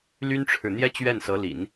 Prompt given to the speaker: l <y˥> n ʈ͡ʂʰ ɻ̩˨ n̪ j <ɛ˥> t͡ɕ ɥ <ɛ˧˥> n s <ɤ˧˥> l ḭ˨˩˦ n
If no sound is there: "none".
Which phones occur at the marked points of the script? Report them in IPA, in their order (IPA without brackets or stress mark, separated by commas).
y˥, ɛ˥, ɛ˥˩, ɤ˧˥